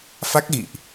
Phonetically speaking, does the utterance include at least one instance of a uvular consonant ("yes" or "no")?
no